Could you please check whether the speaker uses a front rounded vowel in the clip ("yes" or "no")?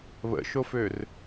yes